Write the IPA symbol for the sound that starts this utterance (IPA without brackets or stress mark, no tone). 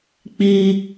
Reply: k͡p